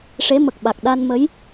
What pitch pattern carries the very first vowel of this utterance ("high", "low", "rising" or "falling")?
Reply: rising